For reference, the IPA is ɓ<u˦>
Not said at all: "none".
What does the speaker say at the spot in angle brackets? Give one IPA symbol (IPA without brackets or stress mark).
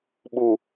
u˨